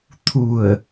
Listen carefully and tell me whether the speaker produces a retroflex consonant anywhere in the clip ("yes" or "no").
no